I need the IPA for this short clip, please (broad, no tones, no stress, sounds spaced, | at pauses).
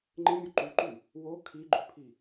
ŋ͡ǃ ɪ mʲ u ǃ u ǃ ʉ | w o kʰ i ɡ͡ǃ ʉ pʰ i